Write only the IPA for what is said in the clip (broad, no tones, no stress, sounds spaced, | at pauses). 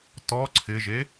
t ɔ ǀʰ ɪ ʒ e